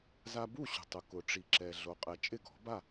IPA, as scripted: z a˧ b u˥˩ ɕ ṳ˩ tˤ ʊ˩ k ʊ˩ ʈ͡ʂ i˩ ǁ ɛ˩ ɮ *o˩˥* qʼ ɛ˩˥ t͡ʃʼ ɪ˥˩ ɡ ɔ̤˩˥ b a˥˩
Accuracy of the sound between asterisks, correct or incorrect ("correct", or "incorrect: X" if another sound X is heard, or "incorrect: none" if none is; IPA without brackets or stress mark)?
correct